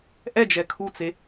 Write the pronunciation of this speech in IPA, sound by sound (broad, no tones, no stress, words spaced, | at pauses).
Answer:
ʔɛd͡ʒɛ kʰut͡se